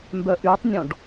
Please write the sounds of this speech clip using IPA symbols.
m b œ ʔ y tˤ nʲ ɔ̃ ɖ

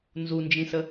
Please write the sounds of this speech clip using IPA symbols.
n z u n d͡ʒ ĩ s ə

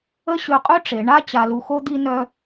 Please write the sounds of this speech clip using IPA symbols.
ə˥ ɕ ø˧ qʼ ø˥ ʈ͡ʂ e˩˧ ɳ a˥ t͡ɕ a˧ l u˧ x o˥ d̪ i˧ n œ˧

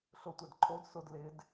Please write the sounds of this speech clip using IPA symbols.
ɬ ʊ tʷ ɛ d ǃʰ o d s ʊ d l ɪ d

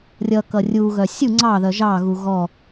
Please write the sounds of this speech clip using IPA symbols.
rʲ ʌ k ʌ rʲ u ɣ œ sʲ u ŋ͡ǀ ɑ ð œ ʒ ɑ ɣ u ɣ ɔ

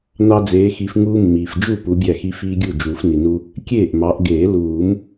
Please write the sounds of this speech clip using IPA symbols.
n ɑ˦ d͡z eː˨˦ x i˨˦ f ŋ uː˦ mː iː˩ f d͡ʒ u˥˩ p u˨˦ bʲ æ˥˩ x i˦ f iː˦ ɡʲ u˥˩ d͡ʒ uː˨˩˦ f n i˩ n u˦ | kʲ eː˥˩ ʔ m ɑ˨˦ ʔ ɡ eː˨˩˦ l uː˨˩˦ m

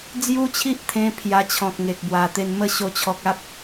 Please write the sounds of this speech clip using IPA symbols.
d͡z j u˦ t͡ɕʰ i˦ ʔ t̪ʰ ẽ˧ pʰ j a˧ t͡ɕʰ ɔ̃˨ k̚ ŋ e˨ k̚ b w a˨˩ t̪ e˧ n m ə˦ ɕ o˧ t͡ɕʰ ɔ˨ k̚ a˦ p̚

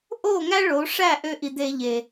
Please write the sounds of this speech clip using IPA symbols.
ʔ o˦˨ ŋ æ˦ ɭ o˨˦ ʂ æ˦˨ ʔ ø˧ ʔ i˨ d̪ e˧ ʎ e˨

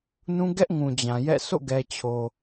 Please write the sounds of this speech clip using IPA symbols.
n ũ˦ ɡ ɛ˦ ʔ ŋ ũ˨ d͡ʑ ã˨ j ɛ̰˦˨ s o̰˦˨ ɡ ɛ˨ t͡ɕʰ o˨

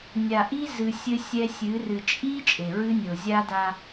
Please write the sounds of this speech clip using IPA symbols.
nʲ a˨ ʔ i˦ z ɨ˨ sʲ ɘ˦ sʲ ɛ˦ sʲ ɨ˨˦ r ɨ˨ t͡ʃʼ i˦ t͡ʃʼ e˨ ɹ ɨ˦ nʲ o˨ zʲ a˦ d a˦

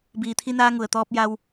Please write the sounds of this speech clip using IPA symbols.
b iː˩ t̪ʰ i˧ n aː˧ ŋ u˩ ə̯ t̪ ɔː˧ p̚ j a˧ w

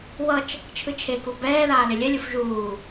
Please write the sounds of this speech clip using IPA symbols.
w ʌ t͡ʃ | t͡ʃʰ ɯ t͡ʃʰ e k u b ɛː ð aː l e lʲ ɛ lʲ u f ʒ uː

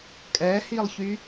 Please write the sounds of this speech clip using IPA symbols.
kʼ ɛ h i lˠ ç y

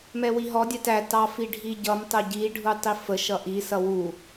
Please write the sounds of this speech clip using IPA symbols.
m ɛ w i ɦ ɔ dʲ ɛ t æ t ɑ f i ɖʱ i ɟ ʌ m tˤ ʊ ɟ i ɖʱ u tˤ i f ə ʃ ʌ ʔ i s ʌ w u

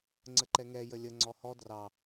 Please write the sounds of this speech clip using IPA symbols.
ŋ͡ǀ ə ǃ ɛ ŋ ɛ j ə lʲ ə ŋ͡ǀ ɔ h ɔ d r ɑ

